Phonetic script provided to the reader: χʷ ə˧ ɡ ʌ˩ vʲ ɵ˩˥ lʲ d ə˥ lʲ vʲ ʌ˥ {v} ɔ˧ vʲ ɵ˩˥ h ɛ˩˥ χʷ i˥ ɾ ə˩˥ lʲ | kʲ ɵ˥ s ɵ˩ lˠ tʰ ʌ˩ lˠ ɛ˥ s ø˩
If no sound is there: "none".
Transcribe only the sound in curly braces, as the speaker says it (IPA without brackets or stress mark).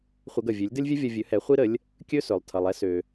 vʲ